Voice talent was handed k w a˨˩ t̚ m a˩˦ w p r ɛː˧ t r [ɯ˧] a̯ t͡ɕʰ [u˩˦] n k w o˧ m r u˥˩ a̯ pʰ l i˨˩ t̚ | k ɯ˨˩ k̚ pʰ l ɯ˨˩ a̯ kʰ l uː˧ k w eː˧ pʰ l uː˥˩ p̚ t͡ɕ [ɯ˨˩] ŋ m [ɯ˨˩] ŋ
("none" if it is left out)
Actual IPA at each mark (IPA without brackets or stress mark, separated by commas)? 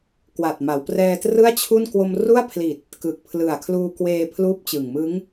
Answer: ɯ˥˩, u˥˩, ɯ˨˩, ɯ˦˥